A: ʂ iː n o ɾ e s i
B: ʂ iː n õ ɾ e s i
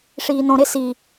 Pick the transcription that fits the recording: B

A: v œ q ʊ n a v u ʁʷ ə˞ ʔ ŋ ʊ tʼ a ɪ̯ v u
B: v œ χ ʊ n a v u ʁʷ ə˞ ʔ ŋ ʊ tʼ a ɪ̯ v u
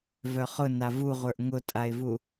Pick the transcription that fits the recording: B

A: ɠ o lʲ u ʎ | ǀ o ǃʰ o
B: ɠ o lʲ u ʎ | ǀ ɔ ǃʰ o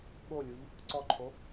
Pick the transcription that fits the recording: B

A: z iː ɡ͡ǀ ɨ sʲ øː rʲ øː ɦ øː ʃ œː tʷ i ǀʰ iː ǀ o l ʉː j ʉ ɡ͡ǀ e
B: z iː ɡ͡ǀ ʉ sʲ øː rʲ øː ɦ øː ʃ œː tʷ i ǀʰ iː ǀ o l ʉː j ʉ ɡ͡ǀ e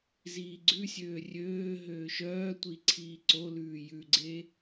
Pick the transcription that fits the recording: B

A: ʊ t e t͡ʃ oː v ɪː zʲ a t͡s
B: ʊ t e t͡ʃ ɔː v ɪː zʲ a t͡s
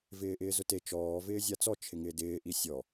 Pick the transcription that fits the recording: B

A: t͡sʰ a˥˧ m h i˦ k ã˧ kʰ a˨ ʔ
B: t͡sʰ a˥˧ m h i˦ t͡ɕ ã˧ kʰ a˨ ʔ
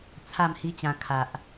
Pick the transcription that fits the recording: B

